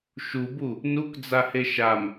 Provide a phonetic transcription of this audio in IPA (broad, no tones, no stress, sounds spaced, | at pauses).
ʃ u b u | n u k d͡z a h e ʃ a m